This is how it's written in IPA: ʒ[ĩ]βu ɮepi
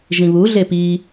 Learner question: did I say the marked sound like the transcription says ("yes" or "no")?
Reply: yes